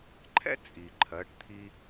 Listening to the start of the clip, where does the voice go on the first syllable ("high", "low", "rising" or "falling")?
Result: high